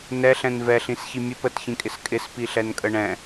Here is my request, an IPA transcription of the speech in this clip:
n ɛ ɬ ɛ̃ n v ɛ ɬ ĩ s ç i mʲ ə p ə t ç ĩ kʼ ɪ s kʼ ɪ s p i ɬ ɛ n kʼ ə ɳ ɛ̃

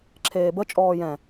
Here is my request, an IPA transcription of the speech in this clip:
ǁʰ eː b ə t͡ʃʼ ɔː j ɛ̃

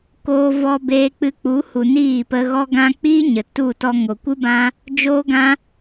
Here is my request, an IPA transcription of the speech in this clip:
k oː˧ v ɔ˧ b eː˧ k͡p ɨ˧ k͡p u˨˦ h u˨ n iː˦˨ p ə˧ ɣ ɔ˦ ɡ ã˦ k͡p iː˦ ɲ ə˨ t u˦˨ t ɔ˧ ŋ o˨ kʷ ɨ˦ b ã˦ | d͡ʒ oː˦ ɡ ã˦

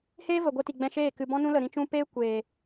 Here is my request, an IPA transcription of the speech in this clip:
h eː˦ v ə˨ ɡʷ ɛ˧ t i˨ ɡ͡b ɛ̃˧ ʃ eː˦˨ k ɨ˧ b ɔ̃˧ n ũ˧ l ə˨ ɾ ĩ˧ t͡ʃ ũ˧ p eː˦ kʷ eː˨

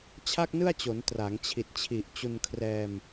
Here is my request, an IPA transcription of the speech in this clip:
t͡ɕʰ a˥˩ k̚ n ɯ˥˩ a̯ t͡ɕ o˩˦ n t r a˩˦ ŋ t͡ɕʰ i˨˩ t̚ t͡ɕʰ i˨˩ ʔ t͡ɕ u˧ n kʰ r ɛː˧ m

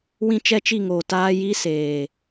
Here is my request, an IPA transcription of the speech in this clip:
w ĩ˦ t͡ʃ ɛ˦ t͡ʃ i˦˨ ŋ oː˨ t aː˦ j i˦ s eː˨

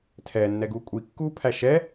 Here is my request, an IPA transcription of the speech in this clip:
tʰ ɛ nː ɛ ɡ u kʷʼ i kː uː pʰ æ ʃ ɛ

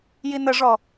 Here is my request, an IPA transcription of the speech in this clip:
j i n ə ʐ ɔ

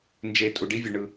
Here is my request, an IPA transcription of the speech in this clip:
n d͡ʒ e˨ tʼ u˨ ɖ i˦ vʲ o˨ ɳ ɯ˦

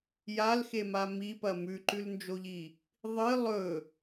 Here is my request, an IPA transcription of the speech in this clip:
j a l x e m a m i p ɐ m ʉ ǃ ʉ l n d͡ʒ o ʎ i | ðˤ ɨ lˠ ɵ

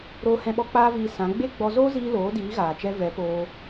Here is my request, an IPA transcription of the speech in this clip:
ɾ oː˧ h ɛ̃˧ ɓ ɔ˧ k͡p aː˦ v iː˧ s ã˨˦ ɡ͡b e˦ ɡ͡b ɔ˧ z oː˦ z iː˧ l oː˨˦ d iː˨˦ ɣ aː˨ t͡ʃ ɛ˧ v ɛ˨˦ p oː˧

